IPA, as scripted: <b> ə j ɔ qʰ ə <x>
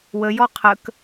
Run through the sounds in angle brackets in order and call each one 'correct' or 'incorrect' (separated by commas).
incorrect, incorrect